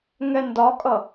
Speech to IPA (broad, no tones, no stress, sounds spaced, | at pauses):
ŋ ɛ n d ɒ kʼ ʌ